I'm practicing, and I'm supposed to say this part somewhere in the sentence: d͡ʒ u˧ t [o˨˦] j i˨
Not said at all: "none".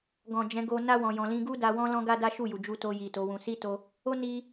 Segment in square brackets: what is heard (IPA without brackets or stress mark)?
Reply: o˧